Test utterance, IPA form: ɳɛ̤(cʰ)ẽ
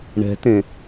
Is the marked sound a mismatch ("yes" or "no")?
yes